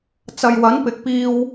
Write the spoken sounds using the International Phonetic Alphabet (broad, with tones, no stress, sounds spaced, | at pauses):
t͡s ɐ˨ j w ɐ˨˥ n p ɪ˨ k̚ p iː˧ w